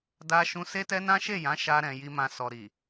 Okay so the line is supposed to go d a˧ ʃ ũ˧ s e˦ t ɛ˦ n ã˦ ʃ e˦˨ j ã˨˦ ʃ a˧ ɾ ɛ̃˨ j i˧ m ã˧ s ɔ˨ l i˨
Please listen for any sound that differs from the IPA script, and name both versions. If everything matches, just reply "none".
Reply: l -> ɾ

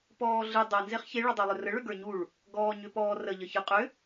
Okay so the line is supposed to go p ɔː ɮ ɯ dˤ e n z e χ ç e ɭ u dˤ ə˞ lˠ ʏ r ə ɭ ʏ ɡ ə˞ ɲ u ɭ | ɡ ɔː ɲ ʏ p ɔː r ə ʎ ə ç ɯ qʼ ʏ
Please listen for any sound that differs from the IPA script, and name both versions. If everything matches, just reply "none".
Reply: none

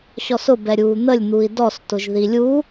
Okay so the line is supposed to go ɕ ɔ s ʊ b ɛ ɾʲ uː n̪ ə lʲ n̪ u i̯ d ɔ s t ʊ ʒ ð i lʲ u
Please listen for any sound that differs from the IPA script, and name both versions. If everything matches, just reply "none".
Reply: none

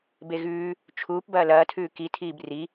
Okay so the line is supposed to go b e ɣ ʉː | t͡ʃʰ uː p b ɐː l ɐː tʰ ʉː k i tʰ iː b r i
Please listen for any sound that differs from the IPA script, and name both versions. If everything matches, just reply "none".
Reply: none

